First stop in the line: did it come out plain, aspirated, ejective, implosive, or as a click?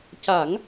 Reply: plain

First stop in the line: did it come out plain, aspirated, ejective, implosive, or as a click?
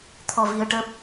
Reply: aspirated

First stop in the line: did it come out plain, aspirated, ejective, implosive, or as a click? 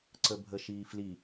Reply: click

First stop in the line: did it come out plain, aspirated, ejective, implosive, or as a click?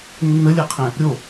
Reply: aspirated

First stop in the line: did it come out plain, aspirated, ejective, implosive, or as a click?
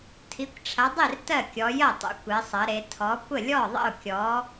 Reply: aspirated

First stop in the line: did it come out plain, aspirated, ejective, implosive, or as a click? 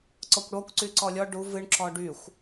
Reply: click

